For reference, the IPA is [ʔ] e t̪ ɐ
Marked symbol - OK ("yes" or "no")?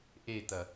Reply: yes